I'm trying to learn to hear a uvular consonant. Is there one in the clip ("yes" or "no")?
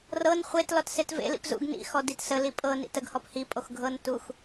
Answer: yes